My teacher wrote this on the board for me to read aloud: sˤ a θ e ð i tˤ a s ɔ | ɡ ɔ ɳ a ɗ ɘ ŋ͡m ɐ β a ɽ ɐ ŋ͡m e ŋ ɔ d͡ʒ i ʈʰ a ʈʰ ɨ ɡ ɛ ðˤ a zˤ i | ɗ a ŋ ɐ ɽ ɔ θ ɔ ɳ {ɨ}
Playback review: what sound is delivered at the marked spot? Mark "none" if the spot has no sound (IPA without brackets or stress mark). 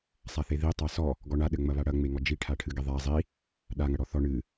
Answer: ɨ